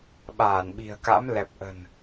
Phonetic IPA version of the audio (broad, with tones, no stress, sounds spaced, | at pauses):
ɓ aː˧˩ n ɓ i̤˨˩ ə̯ k a̰˧˥ m l ɛ˨˩ p̚ ʔ ə̤˨˩ n